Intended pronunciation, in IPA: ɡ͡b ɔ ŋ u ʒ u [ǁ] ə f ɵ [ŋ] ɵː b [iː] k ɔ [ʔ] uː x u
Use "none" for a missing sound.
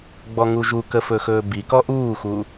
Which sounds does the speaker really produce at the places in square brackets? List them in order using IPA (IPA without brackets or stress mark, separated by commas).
k, x, i, ʔ